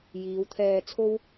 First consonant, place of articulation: palatal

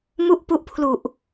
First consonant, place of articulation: labial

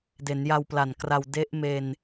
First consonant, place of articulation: alveolar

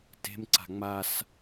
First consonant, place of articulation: alveolar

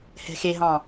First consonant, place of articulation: glottal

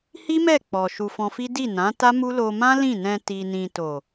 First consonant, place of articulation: glottal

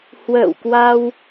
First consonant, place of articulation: glottal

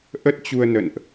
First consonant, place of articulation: glottal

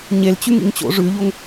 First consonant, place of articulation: palatal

